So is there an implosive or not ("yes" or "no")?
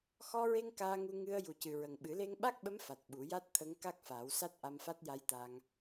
yes